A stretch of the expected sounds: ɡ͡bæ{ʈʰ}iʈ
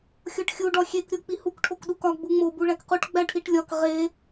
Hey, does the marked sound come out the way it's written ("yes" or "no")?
yes